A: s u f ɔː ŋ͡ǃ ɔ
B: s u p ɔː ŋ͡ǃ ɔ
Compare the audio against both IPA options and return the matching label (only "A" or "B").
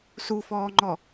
A